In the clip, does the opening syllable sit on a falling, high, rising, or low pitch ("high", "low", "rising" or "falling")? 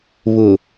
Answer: low